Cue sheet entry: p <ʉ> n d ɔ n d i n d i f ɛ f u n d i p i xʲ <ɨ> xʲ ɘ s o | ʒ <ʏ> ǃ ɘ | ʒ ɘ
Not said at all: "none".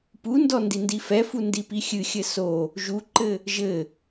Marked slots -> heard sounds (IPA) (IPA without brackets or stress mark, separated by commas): u, ɨ, u